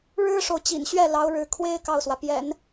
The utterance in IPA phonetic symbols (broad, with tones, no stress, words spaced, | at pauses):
ɻɻ̩˥ʂo˨ʊ̯t͡ɕḭ˨˩nɕɥɛ˥˩ lɑ˧˥ʊ̯ɻɻ̩˧˥ kʰwe˥ɪ̯ kɑ˥˩ʊ̯swä˩pjɛ̰˨˩˦n